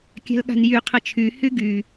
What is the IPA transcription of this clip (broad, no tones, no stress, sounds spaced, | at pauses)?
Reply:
kʲ a̤ l ɠ a̤ n j y qʰ ə t͡ʃʰ y h y ɡ y